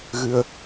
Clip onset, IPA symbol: ɣ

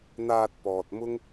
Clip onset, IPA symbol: n̪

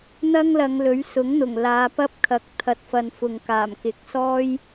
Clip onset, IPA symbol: n̪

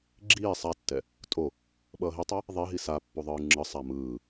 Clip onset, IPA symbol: ɡ͡ǁ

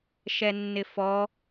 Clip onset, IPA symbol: ʃ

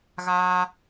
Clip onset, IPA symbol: ɣ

